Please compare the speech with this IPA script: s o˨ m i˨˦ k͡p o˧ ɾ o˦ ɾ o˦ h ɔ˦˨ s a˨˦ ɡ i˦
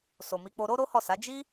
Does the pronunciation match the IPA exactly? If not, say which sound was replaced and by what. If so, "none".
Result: ɡ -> d͡ʒ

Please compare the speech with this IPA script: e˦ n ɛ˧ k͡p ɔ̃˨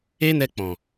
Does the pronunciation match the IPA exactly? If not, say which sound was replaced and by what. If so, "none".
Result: none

